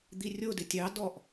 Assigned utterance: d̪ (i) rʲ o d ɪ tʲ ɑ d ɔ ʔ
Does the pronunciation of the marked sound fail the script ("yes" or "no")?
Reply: no